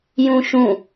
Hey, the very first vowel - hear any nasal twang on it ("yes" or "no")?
yes